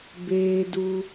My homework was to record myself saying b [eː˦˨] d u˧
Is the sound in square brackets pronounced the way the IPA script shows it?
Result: no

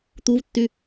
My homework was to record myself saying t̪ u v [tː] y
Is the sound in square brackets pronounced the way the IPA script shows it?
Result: yes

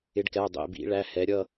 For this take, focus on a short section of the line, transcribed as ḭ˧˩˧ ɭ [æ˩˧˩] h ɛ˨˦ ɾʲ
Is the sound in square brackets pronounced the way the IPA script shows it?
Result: yes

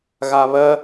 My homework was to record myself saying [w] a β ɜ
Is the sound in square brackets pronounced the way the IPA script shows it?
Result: no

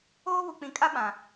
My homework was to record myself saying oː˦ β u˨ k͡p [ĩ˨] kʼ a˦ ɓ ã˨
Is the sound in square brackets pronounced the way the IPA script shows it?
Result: yes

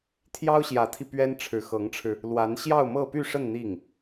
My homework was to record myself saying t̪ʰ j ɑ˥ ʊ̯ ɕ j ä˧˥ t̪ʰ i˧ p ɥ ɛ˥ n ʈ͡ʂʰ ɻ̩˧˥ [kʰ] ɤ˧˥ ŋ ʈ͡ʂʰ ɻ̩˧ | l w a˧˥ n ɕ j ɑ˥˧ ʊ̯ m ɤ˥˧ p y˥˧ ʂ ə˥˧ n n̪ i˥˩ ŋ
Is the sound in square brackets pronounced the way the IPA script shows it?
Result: no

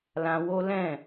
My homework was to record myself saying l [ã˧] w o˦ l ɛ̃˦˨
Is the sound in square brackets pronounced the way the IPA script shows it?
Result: yes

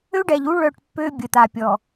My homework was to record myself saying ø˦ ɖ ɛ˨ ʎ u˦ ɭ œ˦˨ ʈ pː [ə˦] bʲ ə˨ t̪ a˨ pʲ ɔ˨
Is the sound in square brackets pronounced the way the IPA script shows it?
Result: no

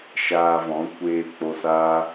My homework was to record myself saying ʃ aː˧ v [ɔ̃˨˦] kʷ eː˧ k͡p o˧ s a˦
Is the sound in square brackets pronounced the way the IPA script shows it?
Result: yes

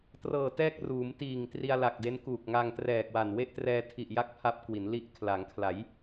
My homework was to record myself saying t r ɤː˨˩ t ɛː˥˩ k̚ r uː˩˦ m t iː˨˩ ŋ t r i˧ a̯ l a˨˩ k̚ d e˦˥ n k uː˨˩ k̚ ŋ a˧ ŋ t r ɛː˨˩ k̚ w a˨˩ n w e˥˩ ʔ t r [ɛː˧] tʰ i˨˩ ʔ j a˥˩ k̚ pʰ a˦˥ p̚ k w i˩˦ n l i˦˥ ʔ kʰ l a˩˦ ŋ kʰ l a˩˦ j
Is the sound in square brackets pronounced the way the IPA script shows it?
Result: yes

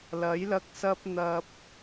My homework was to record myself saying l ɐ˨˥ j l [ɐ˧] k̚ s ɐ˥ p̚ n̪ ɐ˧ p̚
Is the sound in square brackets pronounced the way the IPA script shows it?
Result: yes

